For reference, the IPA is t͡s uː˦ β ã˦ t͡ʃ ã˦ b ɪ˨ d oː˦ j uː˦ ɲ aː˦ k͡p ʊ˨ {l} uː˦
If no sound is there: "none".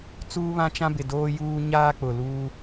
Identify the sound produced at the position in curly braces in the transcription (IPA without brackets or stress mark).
l